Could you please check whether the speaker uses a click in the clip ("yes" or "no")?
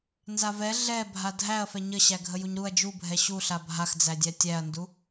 no